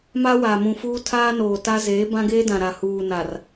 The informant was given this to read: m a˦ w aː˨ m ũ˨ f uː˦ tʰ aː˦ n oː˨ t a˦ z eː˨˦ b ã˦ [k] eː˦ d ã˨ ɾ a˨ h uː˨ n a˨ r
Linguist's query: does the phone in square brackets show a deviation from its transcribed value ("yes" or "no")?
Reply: yes